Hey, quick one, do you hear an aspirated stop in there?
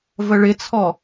yes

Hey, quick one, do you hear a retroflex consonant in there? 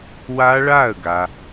yes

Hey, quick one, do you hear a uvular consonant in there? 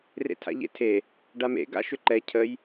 no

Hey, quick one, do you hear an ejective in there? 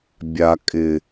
yes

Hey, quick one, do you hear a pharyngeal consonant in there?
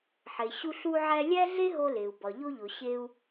yes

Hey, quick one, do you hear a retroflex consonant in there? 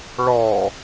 yes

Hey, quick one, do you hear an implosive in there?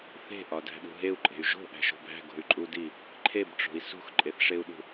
yes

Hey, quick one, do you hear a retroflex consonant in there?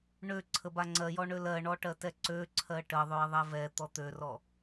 yes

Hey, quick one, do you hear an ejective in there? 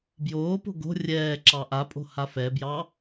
yes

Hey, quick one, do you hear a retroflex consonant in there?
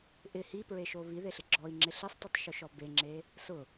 no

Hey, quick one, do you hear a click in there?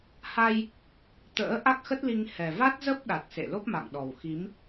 no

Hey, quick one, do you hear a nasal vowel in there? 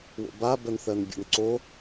no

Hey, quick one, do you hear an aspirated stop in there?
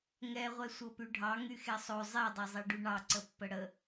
no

